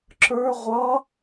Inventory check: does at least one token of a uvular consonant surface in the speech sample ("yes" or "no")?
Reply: yes